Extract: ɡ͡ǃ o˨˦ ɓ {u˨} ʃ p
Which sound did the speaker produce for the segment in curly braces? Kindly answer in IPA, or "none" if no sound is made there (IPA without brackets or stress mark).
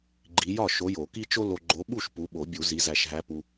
u˥˩